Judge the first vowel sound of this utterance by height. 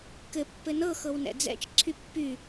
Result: mid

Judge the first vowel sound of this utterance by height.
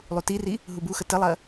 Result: high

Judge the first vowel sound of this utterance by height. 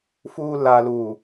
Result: high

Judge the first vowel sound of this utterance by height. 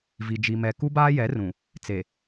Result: high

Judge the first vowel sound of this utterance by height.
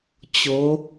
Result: mid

